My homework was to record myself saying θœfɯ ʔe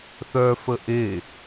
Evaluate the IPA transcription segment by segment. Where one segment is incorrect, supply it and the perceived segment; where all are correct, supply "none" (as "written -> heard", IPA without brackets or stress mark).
ɯ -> ə